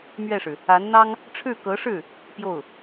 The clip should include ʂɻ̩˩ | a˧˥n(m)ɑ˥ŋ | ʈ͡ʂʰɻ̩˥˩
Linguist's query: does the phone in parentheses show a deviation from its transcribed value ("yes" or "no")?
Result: yes